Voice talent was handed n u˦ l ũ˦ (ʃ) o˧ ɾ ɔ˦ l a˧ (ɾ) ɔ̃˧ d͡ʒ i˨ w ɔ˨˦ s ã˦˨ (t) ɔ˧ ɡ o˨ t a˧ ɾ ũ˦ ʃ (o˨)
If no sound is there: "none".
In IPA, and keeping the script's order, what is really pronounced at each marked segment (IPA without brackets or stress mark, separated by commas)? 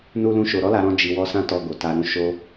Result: ʃ, ɾ, t, o˦